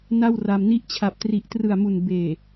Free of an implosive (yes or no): yes